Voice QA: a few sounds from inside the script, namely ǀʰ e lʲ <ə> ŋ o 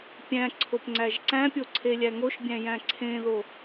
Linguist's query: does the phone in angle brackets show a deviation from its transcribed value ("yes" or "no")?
yes